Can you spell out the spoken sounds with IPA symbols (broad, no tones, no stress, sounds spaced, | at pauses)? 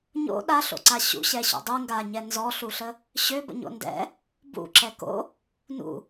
ɲ o̰ ɗ a ɬ o̰ ǀ a ɕ ṵ ɕ ɛ ɕ o̰ dˤ u ŋ ɡ a ɲ ɛ n z ɔ ɬ u ɬ ə | ɕ ø b ə̰ ɲ o̰ n d ɛ̰ | b ṵ ǁ ɛ k o̰ | n ṵ